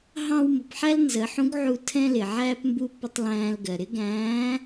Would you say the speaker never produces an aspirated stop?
no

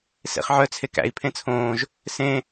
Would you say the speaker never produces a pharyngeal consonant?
no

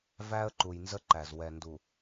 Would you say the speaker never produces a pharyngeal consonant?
yes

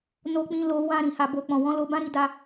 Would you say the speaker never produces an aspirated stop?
yes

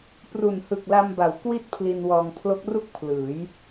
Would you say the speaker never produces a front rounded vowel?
yes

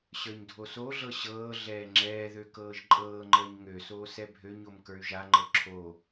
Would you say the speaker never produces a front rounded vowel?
no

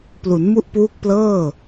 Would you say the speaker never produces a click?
yes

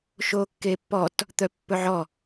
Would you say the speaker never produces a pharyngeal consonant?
no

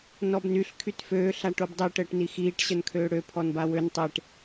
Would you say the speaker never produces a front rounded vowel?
no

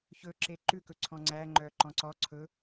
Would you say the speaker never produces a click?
no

